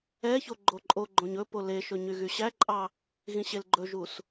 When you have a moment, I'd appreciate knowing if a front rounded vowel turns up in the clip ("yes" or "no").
yes